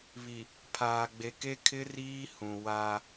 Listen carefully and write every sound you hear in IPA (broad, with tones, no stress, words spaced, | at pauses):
βi˨ | pʰaː˨ɡ͡be˨ke˦ kʰɪ˦riː˦ hũ˨waː˦